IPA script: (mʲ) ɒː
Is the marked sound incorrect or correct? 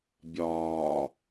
incorrect: bʲ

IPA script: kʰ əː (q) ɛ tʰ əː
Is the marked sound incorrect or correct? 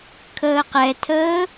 correct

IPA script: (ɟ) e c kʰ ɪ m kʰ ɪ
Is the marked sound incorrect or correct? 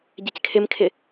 correct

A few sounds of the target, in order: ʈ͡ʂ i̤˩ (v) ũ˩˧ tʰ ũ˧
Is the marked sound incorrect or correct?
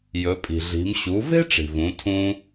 correct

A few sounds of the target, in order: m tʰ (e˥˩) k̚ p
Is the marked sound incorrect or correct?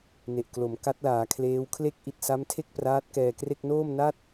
correct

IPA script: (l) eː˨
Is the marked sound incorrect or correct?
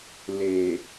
correct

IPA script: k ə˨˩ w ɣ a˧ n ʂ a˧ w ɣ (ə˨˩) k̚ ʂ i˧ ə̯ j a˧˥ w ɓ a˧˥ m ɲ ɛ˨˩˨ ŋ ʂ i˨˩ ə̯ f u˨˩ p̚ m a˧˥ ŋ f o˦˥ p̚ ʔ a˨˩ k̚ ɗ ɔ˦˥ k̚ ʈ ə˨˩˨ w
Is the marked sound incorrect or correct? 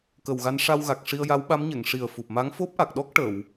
incorrect: a˨˩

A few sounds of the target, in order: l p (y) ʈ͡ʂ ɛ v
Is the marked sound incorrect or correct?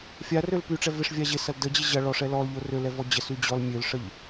correct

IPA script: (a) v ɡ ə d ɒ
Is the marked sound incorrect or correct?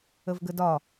incorrect: ə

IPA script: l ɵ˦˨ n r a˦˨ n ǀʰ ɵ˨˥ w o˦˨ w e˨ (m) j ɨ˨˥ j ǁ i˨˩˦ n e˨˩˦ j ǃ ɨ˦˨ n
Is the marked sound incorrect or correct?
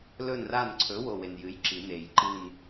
incorrect: n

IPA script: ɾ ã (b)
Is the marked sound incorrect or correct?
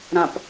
incorrect: p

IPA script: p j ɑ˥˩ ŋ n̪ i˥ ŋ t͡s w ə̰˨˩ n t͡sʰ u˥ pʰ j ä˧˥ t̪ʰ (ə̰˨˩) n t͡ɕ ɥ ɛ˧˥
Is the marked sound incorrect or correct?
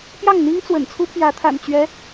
incorrect: a̰˨˩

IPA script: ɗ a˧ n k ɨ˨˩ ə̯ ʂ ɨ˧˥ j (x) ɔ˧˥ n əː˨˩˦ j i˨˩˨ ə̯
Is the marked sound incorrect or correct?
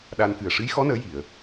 correct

